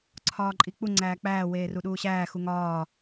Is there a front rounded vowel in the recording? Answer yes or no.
no